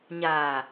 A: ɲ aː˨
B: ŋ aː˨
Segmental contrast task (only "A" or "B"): A